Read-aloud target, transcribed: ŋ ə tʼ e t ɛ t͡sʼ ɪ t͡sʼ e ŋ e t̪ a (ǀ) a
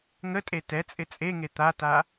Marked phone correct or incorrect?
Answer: incorrect